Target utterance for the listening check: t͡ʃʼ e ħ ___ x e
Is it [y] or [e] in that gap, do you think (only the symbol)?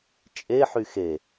y